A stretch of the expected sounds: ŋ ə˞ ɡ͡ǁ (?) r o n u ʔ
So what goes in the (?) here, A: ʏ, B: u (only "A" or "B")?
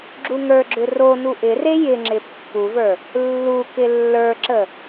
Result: A